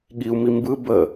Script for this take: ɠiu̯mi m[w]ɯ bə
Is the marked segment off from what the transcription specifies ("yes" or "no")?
yes